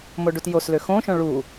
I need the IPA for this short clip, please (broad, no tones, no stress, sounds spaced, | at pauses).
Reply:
m o ɖ u t j o s l ø x õ ʃ õ ɭ u